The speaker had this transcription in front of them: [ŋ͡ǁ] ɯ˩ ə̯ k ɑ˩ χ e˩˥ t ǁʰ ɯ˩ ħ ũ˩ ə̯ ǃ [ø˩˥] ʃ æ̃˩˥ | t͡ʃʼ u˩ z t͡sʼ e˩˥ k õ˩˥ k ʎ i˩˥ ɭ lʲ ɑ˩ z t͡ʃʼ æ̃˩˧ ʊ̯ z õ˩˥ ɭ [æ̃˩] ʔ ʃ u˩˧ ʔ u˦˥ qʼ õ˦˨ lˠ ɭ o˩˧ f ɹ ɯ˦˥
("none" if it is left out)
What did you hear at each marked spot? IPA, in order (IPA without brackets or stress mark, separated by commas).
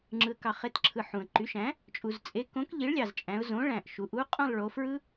ŋ͡ǁ, y˩˥, æ̃˩